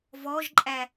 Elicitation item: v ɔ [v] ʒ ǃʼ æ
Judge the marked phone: incorrect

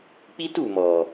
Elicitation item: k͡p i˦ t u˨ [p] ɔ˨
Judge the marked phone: incorrect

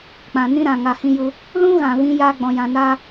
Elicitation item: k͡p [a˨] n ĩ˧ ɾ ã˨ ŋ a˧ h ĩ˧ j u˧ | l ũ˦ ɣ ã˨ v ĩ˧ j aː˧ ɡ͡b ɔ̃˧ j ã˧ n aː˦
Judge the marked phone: incorrect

